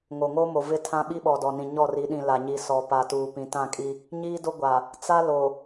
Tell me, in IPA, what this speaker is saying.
ŋ o˨ ŋ o˦ m o˨ v ɪ˦ tʰ ã˦ ɓ i˦ ɓ ɔ˨ d ɔ˨ n ĩ˨ ɲ ɔ˦˨ r i˨˦ ɗ ĩ˨ l a˨ ɲ i˨ s ɔ˨ p a˨ t uː˨ p ĩ˨ t ã˦˨ kʼ i˦ | ɲ iː˦ d o˦ ɡʷ a˨ | t͡s a˦ l o˨

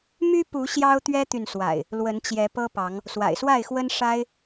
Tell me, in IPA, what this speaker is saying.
m y˦ p u˨˦ ɕ j ɑ˦ ʊ̯ t̪ ɥ ɛ˦ t̪ y˨ n s w a̰˨˩ ɪ̯ | l w ə˨˦ n t͡ɕ j ɛ˨˦ p ɤ˦ p ɑ˨˦ ŋ | s w a̰˨˩ ɪ̯ s w a˥˨ ɪ̯ x w ə˦ n ʂ a˦ ɪ̯

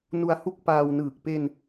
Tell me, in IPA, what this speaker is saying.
n u˧ a̯ h u˦˥ k̚ p aː˧ w n ɯː˨˩ k̚ p e˧ n

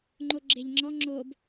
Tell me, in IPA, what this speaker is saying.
ŋ͡ǃ o ɡ͡ǁ e ʎ ŋ͡ǁ ɔ ŋ͡ǁ o b

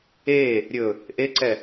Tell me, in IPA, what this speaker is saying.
e | ɾʲ ɵ | ʔ e ǀ ɛ

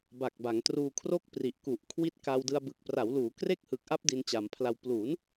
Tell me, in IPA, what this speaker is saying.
b a˨˩ k̚ b a˩˦ ŋ t r uː˧ kʰ r o˥˩ k̚ p r i˨˩ ʔ k u˨˩ ʔ kʰ w i˦˥ t̚ k a˧ w d ɯ˧ a̯ b ɯ˨˩ k̚ p r a˩˦ w l uː˩˦ k r e˥˩ k̚ h ɯ˨˩ k̚ ʔ a˦˥ p̚ d i˧ n t͡ɕ a˩˦ m pʰ l a˧ w p l uː˩˦ n

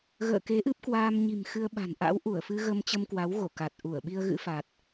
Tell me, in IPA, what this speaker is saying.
ɣ ə̰ː˧˨ k e˨˦ ʔ ɨ˦˥ p̚ k w aː˧ m ɲ i̤˨˩ m x ɨ˧ ə̯ ɓ a̤˨˩ n ʔ a̰˧˥ w ʔ u˧˩ ə̯ f ɨ˧ ɣ ə˧ m t͡ɕ ə˧ m k w a˨˦ w ɣ o˧˩ k a˨˩ t̚ ʔ u˧˩ ə̯ ɓ i˧ ə̯ ɣ ɨ̰˧˥ f a˨˩ t̚

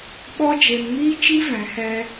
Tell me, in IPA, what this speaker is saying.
ɓ ɔ˦ d͡ʒ e˧ m ŋ iː˦ t͡ʃ i˦ v ɛ̃˨˦ h ɛ˧

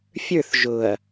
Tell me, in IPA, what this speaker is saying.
fʲ ə˞ θ ʒ ʊ ɐ̯

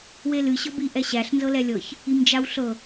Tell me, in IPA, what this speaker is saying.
w e l ɨ ɕ ɤ b i ʔ ɛ ɕ æ ɬ n z ɤ l ɛ lʲ ɤ ç | i m d͡ʒ a w ɬ ɤ

